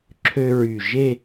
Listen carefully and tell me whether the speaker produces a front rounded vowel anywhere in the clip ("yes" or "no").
yes